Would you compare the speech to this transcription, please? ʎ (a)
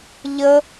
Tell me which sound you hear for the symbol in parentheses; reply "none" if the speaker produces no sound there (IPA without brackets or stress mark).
ə